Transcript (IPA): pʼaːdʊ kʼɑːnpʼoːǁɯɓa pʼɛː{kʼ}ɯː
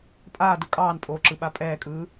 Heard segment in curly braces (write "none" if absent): kʼ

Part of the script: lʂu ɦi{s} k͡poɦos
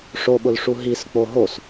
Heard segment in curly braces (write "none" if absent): s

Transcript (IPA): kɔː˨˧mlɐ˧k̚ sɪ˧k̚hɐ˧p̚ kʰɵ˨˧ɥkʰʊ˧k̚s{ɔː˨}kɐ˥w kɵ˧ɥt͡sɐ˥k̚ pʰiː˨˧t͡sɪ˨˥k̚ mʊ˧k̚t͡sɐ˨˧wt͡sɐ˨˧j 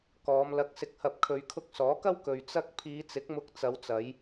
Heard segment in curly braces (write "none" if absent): ɔː˨˥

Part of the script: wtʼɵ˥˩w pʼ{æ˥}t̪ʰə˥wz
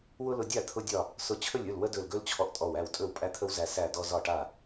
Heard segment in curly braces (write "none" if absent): æ˥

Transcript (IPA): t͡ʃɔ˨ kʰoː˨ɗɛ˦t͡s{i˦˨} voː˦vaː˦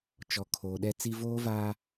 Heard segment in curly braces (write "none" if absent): i˦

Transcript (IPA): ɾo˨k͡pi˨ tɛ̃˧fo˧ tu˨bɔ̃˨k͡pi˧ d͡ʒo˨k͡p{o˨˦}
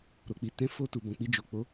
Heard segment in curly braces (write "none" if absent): o˨˦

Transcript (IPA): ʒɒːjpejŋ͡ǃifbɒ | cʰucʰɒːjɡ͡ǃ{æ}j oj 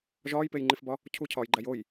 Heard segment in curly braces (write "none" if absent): æ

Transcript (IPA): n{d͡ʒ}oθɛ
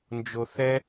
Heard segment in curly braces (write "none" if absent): d͡ʒ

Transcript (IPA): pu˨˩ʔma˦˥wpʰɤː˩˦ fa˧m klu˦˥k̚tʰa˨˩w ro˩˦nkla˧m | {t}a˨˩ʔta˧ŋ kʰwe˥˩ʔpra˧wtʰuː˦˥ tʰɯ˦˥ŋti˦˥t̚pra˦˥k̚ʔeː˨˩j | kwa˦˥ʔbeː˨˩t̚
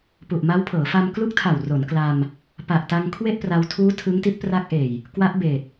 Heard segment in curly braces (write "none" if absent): p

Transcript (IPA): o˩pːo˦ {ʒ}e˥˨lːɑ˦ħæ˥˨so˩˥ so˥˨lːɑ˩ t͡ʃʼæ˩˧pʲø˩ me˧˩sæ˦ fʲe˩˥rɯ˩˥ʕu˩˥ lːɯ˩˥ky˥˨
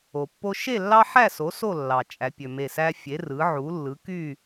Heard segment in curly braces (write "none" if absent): ʃ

